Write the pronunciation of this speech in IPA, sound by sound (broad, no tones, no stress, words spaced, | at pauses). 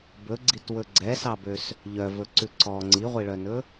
bɵɡ͡ǀitwɵ ɡ͡ǀɛsɑbøs | ʎœvɵǀʉ ǀɔ ŋ͡ǀiʁʷiɭœnɵ